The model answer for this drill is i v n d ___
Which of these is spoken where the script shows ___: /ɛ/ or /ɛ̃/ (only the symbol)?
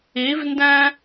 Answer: ɛ̃